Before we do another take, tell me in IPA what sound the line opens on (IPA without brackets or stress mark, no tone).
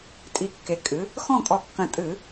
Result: tʼ